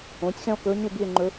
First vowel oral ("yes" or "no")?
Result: no